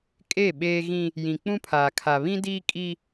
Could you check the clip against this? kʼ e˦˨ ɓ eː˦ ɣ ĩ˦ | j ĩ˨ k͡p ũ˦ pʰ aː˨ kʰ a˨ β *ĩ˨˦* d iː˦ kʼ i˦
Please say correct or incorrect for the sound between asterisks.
incorrect: ĩ˦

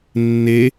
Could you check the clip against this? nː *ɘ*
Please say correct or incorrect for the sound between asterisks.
incorrect: e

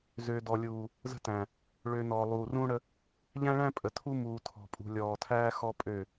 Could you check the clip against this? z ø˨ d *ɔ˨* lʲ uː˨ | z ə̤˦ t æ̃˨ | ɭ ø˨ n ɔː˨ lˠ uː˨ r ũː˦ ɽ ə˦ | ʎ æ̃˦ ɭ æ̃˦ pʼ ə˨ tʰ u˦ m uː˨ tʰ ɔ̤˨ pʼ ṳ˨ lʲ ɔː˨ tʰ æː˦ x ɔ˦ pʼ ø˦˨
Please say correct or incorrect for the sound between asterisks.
correct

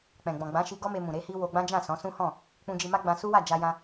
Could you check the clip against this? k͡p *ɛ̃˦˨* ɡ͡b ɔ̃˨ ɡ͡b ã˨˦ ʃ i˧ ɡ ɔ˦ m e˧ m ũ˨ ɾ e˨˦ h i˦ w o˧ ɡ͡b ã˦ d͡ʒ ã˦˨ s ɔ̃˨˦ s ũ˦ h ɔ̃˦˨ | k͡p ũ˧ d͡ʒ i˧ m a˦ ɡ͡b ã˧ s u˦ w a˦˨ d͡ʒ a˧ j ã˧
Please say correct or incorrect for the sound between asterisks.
incorrect: ɛ̃˨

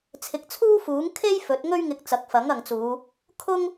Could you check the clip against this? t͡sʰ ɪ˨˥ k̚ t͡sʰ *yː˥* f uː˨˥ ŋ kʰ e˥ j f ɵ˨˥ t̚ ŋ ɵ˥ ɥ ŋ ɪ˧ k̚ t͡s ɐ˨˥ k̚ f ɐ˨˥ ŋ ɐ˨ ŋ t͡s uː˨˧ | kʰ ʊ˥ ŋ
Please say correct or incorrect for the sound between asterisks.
incorrect: uː˥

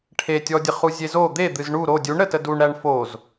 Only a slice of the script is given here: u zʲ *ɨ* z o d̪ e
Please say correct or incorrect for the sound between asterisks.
incorrect: e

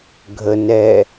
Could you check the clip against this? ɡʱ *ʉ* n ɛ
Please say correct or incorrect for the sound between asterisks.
incorrect: ə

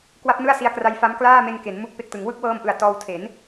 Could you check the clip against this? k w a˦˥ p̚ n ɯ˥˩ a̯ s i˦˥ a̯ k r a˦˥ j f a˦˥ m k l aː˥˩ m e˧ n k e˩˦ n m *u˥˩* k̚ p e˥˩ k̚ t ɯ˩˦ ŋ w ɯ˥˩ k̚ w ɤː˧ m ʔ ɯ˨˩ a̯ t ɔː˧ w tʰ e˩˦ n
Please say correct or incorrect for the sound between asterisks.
correct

